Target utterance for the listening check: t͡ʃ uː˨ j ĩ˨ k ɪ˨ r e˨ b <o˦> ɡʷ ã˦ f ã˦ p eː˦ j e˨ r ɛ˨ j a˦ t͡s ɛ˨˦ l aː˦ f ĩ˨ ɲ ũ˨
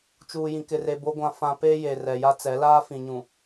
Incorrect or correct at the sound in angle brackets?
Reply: correct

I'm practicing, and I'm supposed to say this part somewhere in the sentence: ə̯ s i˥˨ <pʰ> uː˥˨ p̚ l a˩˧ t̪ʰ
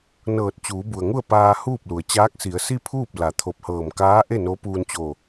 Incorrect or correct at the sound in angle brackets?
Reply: correct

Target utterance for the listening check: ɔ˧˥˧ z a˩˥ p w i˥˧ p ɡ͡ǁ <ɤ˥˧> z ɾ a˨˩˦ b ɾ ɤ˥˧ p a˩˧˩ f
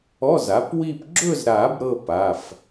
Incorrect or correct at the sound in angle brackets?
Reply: incorrect: ɵ˥˧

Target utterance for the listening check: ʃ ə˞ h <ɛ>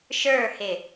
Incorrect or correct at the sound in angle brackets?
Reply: incorrect: ɪ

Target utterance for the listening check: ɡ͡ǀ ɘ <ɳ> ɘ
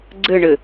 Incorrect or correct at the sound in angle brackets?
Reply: correct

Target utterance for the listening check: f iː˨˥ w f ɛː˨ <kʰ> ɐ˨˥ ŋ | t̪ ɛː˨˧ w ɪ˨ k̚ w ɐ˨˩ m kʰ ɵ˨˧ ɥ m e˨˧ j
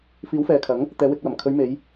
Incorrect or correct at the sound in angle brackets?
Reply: correct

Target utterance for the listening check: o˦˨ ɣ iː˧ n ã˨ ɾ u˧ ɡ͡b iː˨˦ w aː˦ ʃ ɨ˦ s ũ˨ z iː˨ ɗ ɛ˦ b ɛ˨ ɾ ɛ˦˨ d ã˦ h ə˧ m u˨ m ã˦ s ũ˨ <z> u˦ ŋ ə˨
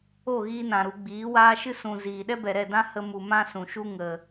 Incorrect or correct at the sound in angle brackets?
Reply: incorrect: ʃ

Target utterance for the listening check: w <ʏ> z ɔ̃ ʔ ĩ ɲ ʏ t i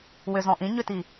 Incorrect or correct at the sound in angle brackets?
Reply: correct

